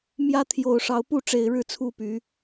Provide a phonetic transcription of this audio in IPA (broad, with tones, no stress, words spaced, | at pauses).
mjä˦ t̪ʰjo˨˩ʊ̯ʂɑ˨˦ʊ̯pu˥˨ʈ͡ʂe˨˩ɪ̯ ɻɻ̩˥˨t͡sʰu˥˨py˨˦